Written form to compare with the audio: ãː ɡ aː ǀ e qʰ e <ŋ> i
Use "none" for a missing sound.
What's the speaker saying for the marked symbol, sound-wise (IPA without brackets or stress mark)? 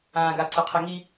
ŋ